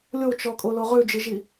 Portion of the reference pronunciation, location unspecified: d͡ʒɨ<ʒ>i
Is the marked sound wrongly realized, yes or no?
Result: no